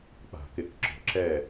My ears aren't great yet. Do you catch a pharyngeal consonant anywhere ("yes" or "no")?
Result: no